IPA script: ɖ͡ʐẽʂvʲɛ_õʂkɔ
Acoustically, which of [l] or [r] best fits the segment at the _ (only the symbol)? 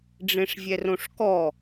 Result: r